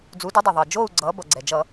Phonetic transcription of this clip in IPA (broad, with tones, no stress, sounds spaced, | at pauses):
d͡z u˩˥ d ʌ˩˥ dˤ o˩ ðˤ ʌː˩ d͡ʒ oː˥˨ u̯ ɡ͡ǀ ʌː˩˥ b ʌ˩ ɡ͡ǀ ɛ˩ d͡ʒ ʌ˧˩˧